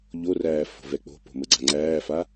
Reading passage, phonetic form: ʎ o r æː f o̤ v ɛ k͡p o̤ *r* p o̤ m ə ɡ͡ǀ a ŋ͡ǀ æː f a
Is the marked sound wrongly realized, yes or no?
yes